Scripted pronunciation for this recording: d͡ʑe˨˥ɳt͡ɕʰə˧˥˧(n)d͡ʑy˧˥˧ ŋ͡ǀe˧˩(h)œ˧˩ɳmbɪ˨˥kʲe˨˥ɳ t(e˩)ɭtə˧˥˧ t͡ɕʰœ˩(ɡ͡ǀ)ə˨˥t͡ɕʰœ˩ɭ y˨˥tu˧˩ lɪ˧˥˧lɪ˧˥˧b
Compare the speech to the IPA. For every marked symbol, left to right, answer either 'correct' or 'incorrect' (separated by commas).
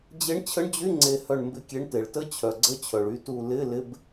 incorrect, correct, correct, correct